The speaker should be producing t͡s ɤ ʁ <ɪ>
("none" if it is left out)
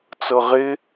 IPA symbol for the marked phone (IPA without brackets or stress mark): ɪ